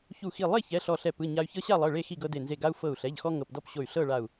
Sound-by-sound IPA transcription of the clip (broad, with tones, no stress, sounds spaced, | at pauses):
ç u˧˩ x i˧˩ lˠ e˥˨ ç ɛ˩˧˩ ɬ ɔ˧˩ ɬ ɛ˧˩ p ɯ˩˧˩ ɲ a˦ y̯ ç ɤ˦ ɕ a˥˨ lˠ ɤ˩˧˩ ɭ e˥˨ x i˥˨ ɡ ɤ˦ d e˧˩ n z e˧˩ ɡ a˦ u̯ f ɤ˧˩ u̯ ɬ ɛ˩˧˩ ʎ x ɔ˦ ŋ ɤ˩˧˩ p d ɔ˥˨ p ɕ o˧˩ y̯ ɬ ɤ˥˨ ɭ a˧˩ u̯